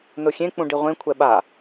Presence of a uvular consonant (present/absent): present